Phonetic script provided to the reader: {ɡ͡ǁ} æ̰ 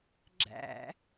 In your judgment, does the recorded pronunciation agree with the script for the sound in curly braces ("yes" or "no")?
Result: yes